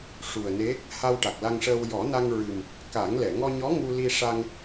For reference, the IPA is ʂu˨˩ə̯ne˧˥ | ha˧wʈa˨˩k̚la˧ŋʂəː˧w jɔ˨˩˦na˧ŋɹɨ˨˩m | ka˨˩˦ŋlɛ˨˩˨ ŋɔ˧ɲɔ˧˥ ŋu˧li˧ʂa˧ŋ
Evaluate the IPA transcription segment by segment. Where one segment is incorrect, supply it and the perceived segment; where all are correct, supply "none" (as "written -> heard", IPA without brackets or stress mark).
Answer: none